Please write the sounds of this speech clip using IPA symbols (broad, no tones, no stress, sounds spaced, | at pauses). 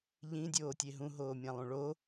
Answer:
ʎ ĩ dʲ oː tʲ e ɦ ũ ɦ oː mʲ ã lˠ ũ ɭ o